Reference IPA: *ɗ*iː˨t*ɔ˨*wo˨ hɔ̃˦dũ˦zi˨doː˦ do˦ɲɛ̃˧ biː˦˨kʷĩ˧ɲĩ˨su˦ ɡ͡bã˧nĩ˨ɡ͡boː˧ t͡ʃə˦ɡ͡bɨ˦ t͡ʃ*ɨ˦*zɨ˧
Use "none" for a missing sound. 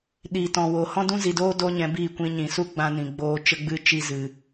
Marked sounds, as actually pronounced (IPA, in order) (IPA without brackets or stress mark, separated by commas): ɗ, ɔ̃˨, i˦